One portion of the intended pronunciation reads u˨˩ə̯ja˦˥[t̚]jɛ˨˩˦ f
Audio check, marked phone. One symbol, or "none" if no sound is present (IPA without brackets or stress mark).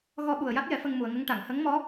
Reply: t̚